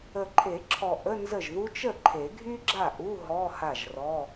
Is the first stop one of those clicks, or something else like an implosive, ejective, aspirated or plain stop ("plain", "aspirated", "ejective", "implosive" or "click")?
click